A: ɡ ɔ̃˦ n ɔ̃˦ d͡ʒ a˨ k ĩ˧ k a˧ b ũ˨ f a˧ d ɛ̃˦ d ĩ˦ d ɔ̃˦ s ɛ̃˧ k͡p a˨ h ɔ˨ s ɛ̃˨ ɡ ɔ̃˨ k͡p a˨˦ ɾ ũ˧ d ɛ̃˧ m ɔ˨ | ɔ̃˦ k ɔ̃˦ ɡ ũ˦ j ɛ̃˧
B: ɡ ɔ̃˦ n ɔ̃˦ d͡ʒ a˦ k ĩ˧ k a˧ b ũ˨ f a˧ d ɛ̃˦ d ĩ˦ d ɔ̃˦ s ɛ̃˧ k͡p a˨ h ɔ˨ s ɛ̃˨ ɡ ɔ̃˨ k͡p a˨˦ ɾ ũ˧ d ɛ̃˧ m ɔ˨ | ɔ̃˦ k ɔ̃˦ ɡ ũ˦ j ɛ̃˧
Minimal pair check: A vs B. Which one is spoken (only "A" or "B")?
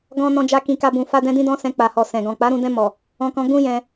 B